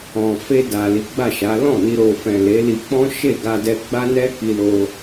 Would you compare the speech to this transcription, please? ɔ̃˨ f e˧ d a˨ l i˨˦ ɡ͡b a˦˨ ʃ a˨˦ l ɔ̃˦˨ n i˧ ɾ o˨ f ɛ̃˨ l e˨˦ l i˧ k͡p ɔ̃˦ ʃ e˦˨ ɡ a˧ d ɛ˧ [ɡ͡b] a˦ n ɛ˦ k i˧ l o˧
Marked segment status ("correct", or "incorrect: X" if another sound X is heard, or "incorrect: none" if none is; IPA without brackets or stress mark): correct